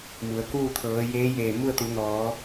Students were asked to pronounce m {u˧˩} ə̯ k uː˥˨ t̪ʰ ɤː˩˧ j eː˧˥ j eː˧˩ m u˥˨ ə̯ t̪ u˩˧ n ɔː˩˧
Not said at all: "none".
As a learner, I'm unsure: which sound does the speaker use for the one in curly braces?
u˩˧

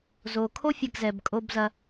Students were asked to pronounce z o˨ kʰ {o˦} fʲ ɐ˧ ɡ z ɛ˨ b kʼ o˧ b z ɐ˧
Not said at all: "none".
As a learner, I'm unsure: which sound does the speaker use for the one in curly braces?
o˦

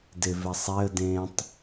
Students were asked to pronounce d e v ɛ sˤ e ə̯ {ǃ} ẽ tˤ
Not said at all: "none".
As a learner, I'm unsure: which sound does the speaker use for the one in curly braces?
d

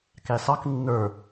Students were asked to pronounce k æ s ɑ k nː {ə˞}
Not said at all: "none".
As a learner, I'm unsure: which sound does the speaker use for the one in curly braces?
ə˞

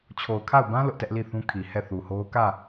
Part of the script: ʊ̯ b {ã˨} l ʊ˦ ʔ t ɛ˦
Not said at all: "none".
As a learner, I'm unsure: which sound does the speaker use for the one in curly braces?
ã˦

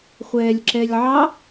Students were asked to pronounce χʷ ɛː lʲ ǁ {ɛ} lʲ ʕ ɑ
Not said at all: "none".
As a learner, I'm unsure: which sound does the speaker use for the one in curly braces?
ɛ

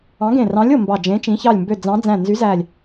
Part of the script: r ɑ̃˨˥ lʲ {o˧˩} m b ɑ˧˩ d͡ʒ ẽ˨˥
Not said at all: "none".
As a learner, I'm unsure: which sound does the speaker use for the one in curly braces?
o˧˩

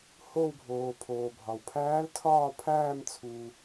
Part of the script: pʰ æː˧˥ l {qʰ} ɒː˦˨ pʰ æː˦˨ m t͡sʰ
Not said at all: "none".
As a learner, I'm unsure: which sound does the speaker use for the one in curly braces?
tʰ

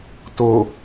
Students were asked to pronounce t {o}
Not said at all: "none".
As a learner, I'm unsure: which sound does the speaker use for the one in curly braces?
o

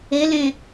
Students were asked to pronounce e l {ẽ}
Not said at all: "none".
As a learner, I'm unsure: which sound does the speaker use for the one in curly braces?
ẽ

